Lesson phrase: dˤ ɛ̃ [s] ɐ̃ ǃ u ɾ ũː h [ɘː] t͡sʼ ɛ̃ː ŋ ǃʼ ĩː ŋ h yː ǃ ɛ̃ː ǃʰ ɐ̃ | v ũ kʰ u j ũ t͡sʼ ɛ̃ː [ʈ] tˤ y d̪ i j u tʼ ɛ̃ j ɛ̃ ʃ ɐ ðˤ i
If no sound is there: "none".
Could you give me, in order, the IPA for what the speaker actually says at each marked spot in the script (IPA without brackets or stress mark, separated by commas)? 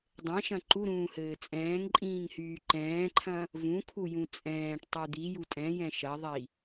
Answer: ʃ, ɘː, ʈ